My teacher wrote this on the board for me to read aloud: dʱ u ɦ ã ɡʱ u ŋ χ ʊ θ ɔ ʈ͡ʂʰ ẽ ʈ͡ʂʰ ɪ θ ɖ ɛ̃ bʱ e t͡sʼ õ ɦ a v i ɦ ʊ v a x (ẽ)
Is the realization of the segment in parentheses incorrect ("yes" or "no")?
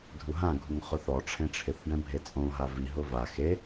yes